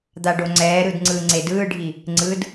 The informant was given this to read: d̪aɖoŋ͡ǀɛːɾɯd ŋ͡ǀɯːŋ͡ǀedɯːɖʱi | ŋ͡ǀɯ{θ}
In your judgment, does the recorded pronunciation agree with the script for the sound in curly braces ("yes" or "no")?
no